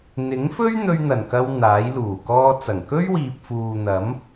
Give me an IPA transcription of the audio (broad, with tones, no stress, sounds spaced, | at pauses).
n̪ ɪ˨˥ ŋ f ɵ˥ ɥ n̪ ɵ˧ ɥ n̪ ɐ˨˩ n k ɐ˧ w n̪ aː˨˥ j l uː˨˩ k ɔː˥ t͡s ɐ˨˩ ŋ k ɵ˥ ɥ w iː˨ p̚ f uː˨ n̪ ɐ˨˥ m